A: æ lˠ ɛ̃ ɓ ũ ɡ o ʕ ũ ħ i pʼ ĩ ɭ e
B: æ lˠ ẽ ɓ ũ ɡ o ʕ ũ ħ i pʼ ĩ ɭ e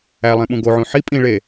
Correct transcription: B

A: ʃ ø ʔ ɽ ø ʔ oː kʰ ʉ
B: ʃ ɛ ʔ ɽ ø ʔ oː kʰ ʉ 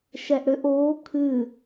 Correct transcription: B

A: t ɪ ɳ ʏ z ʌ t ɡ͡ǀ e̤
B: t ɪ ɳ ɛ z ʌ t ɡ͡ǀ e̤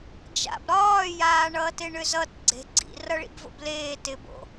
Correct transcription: A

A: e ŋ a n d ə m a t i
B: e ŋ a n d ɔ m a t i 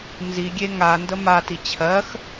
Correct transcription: A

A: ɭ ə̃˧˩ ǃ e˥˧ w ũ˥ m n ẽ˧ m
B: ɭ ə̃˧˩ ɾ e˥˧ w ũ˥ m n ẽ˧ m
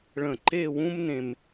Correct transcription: A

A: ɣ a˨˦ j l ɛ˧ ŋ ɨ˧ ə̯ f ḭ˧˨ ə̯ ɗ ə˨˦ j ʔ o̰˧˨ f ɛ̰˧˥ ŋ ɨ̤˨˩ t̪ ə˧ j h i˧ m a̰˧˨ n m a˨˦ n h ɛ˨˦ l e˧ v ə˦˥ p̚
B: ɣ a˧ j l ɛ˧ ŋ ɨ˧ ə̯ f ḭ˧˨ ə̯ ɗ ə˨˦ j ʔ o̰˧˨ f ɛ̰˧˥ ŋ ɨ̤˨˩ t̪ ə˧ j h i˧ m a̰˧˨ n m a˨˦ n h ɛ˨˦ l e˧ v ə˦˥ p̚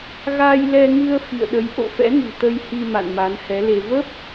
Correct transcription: B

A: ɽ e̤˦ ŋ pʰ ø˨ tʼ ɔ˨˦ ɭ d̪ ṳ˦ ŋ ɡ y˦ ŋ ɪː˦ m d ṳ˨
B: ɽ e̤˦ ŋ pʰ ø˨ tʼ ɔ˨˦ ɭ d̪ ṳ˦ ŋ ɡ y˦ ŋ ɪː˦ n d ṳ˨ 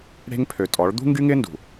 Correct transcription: B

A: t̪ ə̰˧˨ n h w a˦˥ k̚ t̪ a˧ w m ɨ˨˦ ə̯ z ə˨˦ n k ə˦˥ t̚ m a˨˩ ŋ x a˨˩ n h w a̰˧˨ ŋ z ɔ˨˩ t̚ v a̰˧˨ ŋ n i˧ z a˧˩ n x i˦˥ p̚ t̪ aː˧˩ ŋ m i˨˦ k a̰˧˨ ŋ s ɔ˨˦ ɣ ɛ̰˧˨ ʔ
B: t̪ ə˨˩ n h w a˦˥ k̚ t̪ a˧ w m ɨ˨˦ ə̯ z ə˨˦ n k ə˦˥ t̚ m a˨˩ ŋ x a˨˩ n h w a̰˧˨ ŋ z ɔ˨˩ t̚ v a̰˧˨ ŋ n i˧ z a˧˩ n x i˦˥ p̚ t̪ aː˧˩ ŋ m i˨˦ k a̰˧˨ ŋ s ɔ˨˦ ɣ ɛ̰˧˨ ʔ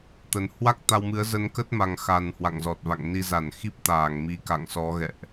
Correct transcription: B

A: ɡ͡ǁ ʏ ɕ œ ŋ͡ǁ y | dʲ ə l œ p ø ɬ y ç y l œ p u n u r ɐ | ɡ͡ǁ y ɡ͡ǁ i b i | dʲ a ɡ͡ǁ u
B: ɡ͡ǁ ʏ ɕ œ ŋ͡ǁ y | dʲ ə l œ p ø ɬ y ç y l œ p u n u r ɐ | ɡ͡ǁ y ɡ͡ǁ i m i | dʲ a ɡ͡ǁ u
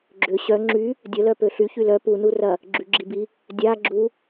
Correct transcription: A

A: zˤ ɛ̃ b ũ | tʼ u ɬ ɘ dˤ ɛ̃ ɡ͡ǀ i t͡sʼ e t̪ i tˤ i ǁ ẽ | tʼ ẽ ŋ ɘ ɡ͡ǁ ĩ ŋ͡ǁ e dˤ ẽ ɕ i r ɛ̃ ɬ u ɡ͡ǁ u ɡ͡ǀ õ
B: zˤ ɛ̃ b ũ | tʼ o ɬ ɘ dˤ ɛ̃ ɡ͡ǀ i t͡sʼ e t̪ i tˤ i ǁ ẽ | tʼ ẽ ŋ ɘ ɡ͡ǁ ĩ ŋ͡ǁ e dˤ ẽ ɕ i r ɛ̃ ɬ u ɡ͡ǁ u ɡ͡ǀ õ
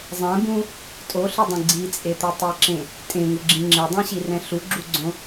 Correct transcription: B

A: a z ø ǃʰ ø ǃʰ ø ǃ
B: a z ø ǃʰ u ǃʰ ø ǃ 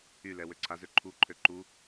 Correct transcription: B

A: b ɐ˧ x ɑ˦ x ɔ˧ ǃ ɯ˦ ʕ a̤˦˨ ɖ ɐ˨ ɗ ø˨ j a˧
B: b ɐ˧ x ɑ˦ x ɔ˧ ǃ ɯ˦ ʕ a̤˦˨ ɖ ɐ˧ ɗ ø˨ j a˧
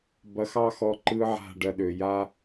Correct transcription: B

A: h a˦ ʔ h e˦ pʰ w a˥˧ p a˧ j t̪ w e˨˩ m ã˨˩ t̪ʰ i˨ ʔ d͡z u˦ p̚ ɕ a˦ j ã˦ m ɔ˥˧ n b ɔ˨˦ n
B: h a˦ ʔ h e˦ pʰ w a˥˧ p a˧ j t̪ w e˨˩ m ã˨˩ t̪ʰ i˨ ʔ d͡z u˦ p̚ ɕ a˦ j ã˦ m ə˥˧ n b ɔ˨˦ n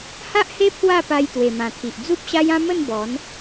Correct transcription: B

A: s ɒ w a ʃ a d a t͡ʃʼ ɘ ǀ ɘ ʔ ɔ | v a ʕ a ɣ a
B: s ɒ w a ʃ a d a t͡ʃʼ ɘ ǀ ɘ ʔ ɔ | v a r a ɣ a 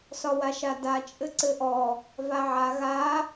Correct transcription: A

